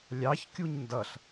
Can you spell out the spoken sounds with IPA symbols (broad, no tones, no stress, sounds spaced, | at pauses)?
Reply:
lʲ ɑ ç kʲ u ɲ n d ʌ ɬ